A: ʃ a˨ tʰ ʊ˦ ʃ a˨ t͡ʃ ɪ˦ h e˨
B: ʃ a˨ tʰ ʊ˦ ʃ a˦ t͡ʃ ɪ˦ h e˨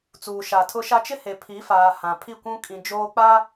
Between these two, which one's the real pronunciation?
B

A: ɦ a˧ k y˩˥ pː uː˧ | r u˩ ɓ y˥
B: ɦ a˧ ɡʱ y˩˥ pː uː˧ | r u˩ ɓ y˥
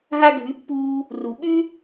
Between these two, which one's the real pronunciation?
B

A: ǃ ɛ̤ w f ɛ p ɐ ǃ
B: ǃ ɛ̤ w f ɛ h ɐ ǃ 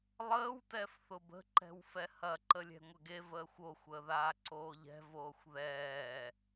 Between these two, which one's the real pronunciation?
B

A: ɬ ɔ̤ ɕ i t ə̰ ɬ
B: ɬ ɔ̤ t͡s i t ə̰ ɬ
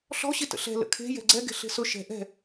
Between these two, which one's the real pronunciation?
A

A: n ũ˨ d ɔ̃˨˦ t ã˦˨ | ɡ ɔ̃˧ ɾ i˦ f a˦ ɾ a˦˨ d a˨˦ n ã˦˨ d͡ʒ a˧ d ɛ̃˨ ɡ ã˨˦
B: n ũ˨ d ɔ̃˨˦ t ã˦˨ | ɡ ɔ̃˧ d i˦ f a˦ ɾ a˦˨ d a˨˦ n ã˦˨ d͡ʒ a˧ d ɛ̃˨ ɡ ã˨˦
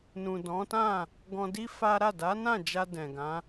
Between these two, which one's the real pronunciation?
B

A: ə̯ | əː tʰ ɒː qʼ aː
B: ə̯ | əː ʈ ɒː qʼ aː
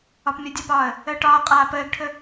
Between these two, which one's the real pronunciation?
B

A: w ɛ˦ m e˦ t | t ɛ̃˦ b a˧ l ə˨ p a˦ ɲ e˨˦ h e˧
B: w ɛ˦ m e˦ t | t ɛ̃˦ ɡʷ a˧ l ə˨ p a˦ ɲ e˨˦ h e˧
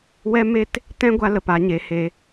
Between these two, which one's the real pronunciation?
B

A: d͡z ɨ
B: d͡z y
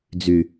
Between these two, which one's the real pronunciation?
B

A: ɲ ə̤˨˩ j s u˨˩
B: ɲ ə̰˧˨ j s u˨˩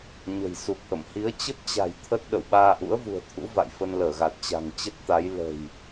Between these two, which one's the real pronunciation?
A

